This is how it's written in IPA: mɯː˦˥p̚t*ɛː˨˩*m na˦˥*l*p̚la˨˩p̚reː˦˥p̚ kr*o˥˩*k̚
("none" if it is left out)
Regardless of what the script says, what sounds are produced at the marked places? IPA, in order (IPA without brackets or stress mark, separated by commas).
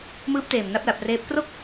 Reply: eː˨˩, none, o˥˩